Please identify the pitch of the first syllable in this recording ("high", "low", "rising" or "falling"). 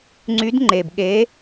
rising